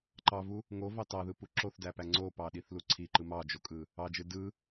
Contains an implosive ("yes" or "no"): yes